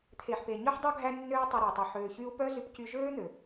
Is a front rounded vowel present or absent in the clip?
present